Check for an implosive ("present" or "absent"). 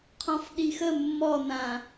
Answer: present